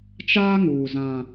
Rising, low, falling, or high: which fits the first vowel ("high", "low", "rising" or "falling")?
high